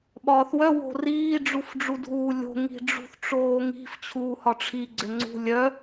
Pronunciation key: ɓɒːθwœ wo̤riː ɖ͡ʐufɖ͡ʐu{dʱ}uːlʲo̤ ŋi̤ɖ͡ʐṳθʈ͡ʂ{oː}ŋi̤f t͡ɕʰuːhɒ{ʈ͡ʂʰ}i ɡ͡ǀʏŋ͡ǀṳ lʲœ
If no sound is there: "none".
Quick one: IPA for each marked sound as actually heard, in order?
dʱ, oː, ʈ͡ʂʰ

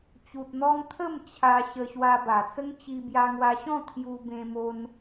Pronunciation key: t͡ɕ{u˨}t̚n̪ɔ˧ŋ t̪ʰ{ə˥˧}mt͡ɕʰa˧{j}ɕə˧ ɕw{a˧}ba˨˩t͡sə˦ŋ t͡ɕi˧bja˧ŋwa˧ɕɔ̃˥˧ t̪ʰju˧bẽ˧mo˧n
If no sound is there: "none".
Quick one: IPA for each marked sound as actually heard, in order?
u˨, ə˥˧, none, a˧

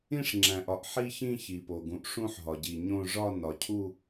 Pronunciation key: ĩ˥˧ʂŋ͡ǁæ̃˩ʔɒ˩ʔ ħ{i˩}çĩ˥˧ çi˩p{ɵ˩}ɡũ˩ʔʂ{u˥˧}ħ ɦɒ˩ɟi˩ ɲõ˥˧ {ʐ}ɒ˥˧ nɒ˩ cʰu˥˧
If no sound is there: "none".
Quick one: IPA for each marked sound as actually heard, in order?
i˥˧, o˩, ũ˥˧, ʐ

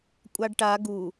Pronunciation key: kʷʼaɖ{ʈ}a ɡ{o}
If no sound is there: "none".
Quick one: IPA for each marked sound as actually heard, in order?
ʈ, u

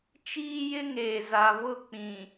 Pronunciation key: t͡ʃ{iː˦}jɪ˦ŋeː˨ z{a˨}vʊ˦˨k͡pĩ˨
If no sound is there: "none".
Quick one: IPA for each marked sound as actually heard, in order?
iː˦, a˨

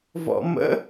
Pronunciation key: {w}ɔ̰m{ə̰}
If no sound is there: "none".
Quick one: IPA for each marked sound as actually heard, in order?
v, ə̰

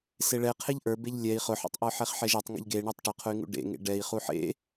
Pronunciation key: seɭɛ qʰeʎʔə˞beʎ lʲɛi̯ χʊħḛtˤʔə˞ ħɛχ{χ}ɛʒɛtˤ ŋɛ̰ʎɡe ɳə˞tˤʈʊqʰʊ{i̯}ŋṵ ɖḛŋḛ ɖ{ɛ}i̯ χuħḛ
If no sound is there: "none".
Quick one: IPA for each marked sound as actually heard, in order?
ħ, y̯, ɛ

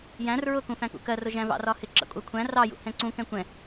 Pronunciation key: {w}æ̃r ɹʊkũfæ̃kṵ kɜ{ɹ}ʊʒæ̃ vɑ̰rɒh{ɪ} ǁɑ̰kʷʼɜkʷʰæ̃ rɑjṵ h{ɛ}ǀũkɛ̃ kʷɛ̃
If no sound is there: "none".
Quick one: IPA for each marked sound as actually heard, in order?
j, r, ɪ, ɛ̃

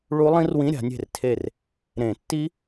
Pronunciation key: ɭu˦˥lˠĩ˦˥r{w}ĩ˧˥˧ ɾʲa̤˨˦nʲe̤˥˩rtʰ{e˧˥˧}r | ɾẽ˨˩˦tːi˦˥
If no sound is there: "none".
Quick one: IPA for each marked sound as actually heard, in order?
w, e˥˩

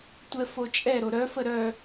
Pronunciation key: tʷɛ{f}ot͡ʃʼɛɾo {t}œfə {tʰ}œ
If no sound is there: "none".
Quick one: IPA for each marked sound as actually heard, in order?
f, ɾ, ɾ

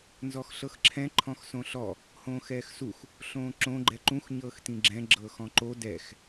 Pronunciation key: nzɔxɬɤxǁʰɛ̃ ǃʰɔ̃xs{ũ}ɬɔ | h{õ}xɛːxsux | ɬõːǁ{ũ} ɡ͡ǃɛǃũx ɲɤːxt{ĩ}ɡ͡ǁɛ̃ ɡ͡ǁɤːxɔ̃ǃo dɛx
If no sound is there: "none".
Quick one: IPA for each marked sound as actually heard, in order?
õ, õː, õ, ĩ

